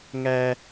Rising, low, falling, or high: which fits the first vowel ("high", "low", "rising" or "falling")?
high